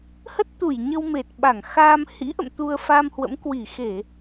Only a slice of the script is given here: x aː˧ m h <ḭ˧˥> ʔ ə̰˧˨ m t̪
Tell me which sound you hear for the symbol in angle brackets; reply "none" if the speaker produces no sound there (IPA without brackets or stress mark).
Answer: ḭ˧˥